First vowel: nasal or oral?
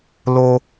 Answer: oral